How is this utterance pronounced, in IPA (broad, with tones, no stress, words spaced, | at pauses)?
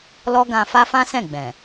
lɔ˦ɡã˧ fa˦fã˦sɛ̃˦˨ ɡ͡bɛ̃˨